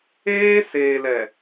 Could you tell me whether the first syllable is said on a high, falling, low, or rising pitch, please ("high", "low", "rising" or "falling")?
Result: high